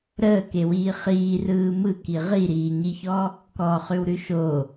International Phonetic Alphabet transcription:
ɾ əː k e w iː χ iː r ɯː m ɯ k i ʁ i ɾ iː ɲ i ç ɔ | k ɔ χ ʉ w ɾ ʉ ʃ o

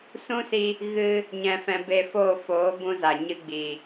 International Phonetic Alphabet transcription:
s ũ˦ s i˧ | ɣ ɨ˧ | ɲ ɛ̃˧ f ɛ̃˧ b e˧ f oː˦˨ f oː˨˦ b ũ˦ z a˨ ɲ ɨ˦ ɡ͡b i˨

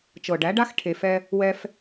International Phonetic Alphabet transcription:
t͡ʃ ɤ˨ ɖ æ˨˦ ɖ a˦ x ʈʰ e˨ f ɛ˧ | w ɛ˧ f

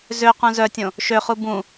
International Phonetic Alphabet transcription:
z ø q ũ z œ tʲ õ | ʃ ø χ u b ũ

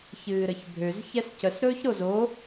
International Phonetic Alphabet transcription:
ç ɨː ɾ ə ç bʱ ø z ç ɛ s c ə s ɾ ɵː ç ɾ o z o

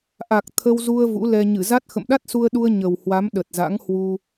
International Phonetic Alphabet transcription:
ʔ a˨˩ k̚ t̪ʰ ə˧ w z u˧ ə̯ v ṵ˧˥ l ɛ˧ ɲ ɨ˧˩ z a˦˥ t̚ x ə̰˧˨ m ɗ a˦˥ t̚ s u˧ ə̯ ɗ u˧ ə̯ ɲ ə˨˩ w h w a˨˦ m ɗ ə˨˩ t̚ z a̰˧˥ ŋ h w u˧

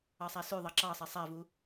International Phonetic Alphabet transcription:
ɑ sˤ æ s ʉ ðˤ ɑ ǁ ɑ sˤ ɛ sˤ æ v u

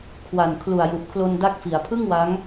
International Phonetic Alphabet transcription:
kʰ w a˨˩ n kʰ l u˨˩ a̯ j u˨˩ ʔ kʰ l o˧ n d a˦˥ k̚ f i˩˦ a̯ pʰ ɯ˥˩ ŋ w a˦˥ ŋ

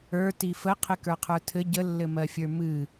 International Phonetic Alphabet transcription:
ə˞ t i f ə qʰ ɨ k ə˞ qʰ ə˞ tʰ ɘ ɟ ə lː ɘ m ɜ fʲ ə˞ m ɨ

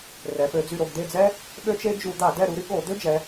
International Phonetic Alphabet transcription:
r ɛ˩˧ p ø˩˧ d͡z y˦˨ ɾ o˦˨ ɡ d̪ e˦˨ d͡z ɛ˥ | ɠ ø˥ t͡ʃ e˥ d͡ʒ u˧˩˧ d̪ a˧˩˧ d ɛ˦˨ ɾ u˩˧ ɾ y˥ ɠ o˧˩˧ d̪ ø˥ d͡ʒ ɛ˩˧

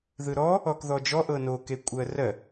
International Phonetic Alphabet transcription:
ð ɯ ɾ ɔ | ɔ k ð ɔ d͡ʒ ɔ ʔ ɤ n o k e kʷʼ ɜ r ɜ

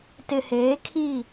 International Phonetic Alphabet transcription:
t ɪ˨ h eː˨˦ kʰ i˦˨

